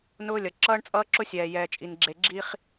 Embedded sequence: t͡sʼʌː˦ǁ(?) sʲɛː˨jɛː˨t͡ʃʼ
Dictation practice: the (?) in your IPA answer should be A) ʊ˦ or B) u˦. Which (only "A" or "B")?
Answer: A